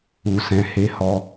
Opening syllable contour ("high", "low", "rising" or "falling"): low